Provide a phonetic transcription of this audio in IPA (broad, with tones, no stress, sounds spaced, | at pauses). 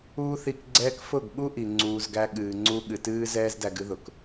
uː˦ θ i˧ k ɡ͡ǀ ɛː˦ k f ʊ˦˨ ɡ ɠ u˦ ʔ i˨ ŋ͡ǀ uː˧ z ɡ æ˦ ɠ ɨː˨ ŋ͡ǀ u˦ ɠ ɨ˨ t ɨː˦ z ɛː˦ z d æ˧ ɡ ɨ˦ ð ʊ˨ k